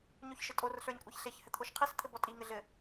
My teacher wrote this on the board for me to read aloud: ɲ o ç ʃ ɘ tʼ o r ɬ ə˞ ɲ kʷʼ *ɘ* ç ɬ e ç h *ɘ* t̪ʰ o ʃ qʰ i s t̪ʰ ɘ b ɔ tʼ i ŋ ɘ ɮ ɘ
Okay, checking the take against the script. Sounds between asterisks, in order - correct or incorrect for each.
incorrect: e, correct

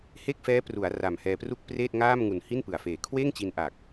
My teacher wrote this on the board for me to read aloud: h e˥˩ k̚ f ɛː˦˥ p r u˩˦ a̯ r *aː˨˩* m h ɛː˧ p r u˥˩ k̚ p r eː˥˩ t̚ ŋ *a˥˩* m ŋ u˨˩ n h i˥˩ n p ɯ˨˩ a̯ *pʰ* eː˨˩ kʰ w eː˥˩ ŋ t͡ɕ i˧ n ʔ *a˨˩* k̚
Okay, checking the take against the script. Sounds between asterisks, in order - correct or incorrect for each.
incorrect: a˨˩, incorrect: aː˥˩, incorrect: f, correct

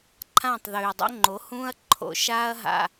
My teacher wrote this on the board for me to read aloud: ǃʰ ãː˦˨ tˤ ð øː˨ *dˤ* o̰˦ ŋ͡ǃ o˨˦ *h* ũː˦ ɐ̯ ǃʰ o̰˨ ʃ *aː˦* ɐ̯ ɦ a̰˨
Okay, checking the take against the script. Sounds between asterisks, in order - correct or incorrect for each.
correct, correct, correct

